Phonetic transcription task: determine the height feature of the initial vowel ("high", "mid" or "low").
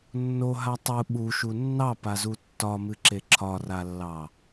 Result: mid